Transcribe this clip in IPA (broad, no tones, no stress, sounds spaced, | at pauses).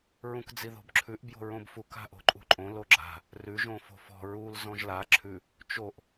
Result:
ɹ ũ k d͡z i ð o̤ b ǁʰ ʉ ʔ b j o̤ ɹ õ b f u k a̤ ʔ o̤ ǃʼ ṳ ǃʼ õ l o ɡ͡ǁ a̤ | r ʉ ʒ õ f o̤ f ɔ̤ ɹ u l z ɔ̃ ʒ l a ǁʰ ʉ | t͡ʃ o ʔ